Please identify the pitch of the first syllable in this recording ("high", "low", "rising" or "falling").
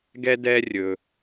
high